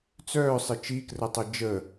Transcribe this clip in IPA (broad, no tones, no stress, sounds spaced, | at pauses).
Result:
t͡s œː sˤ ɪ t͡ʃ i k r ə tˤ ɜ d͡ʒ ə